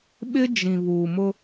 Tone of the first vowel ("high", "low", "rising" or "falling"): high